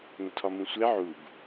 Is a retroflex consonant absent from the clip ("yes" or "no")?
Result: yes